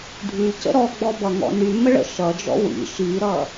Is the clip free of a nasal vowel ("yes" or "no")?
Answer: yes